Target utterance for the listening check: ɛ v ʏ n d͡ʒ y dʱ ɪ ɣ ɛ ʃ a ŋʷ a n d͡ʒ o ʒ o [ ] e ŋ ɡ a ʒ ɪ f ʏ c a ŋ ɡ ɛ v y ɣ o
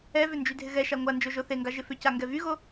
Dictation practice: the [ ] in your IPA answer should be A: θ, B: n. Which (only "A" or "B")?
A